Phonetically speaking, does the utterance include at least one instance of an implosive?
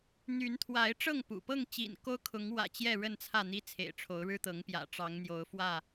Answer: no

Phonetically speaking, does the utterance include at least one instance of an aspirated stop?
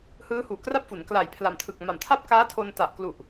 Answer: yes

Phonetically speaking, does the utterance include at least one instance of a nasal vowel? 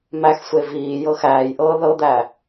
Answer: no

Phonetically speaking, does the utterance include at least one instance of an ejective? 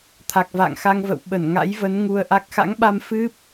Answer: no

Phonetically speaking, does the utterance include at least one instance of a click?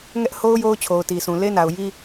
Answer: no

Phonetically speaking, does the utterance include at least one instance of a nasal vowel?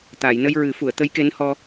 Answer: no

